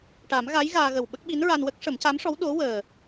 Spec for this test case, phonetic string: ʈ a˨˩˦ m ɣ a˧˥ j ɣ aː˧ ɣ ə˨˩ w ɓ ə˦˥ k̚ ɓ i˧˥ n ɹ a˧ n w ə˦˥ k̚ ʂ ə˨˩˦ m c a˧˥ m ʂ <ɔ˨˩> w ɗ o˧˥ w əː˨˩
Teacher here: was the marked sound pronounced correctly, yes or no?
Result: no